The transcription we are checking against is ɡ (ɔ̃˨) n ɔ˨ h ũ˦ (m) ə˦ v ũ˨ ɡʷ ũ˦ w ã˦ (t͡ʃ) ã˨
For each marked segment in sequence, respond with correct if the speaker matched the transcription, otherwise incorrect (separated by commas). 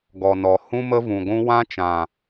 incorrect, correct, correct